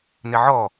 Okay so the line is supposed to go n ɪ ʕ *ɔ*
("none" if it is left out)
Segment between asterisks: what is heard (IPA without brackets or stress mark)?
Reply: ɔ